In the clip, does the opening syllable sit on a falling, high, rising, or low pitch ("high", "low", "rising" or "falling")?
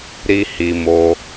high